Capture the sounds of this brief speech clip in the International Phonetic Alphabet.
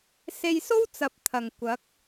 se˧jso˥wt͡sɐ˨˥p̚ t̪ʰɐ˨˩ŋkʷɐ˨˥k̚

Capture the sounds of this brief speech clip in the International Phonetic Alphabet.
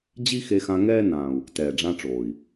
d͡ʑi˦ xe˧xã˧ ŋɛː˦ nãː˨u̯ | tɛː˨ɖ͡ʐã˧ʈ͡ʂoː˨i̯

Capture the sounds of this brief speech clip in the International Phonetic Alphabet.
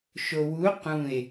ʃowu qũe̯

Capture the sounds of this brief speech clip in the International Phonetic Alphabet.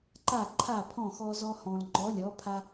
ǃa˥˩ǃʰa˥˩pʰɔ̃˥˩ xɔ˧zɔ˧hɔ̃˩l ŋ͡ǃɔ˩˥lʲɔ˩˥pʰa˧

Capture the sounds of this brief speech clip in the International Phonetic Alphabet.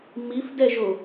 mifdɛʒo

